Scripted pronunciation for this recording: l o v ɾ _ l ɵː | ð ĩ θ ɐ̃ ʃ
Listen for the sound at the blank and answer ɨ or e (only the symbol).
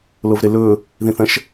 e